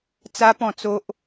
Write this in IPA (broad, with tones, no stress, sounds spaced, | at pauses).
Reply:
t͡s a˦ p ɔ̃˥˧ t͡s o˦ ʔ